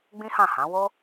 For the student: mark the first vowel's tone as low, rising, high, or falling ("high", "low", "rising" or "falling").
high